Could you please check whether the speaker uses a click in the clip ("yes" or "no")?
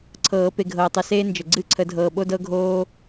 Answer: yes